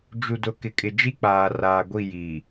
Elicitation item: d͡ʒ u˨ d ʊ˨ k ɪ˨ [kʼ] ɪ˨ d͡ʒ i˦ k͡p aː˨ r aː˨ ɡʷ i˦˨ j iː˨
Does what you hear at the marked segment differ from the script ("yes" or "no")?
no